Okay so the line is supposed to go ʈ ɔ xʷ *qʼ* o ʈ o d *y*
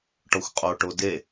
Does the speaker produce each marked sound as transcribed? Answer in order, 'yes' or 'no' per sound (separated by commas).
yes, no